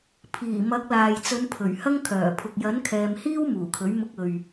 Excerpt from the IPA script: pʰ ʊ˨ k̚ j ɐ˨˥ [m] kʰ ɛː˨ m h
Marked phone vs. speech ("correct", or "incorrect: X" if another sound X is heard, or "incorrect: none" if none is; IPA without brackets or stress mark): incorrect: n